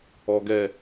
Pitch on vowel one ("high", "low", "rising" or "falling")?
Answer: low